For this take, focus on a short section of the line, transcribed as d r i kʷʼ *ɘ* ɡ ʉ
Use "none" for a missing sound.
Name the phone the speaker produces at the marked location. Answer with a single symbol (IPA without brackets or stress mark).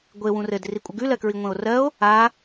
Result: ɘ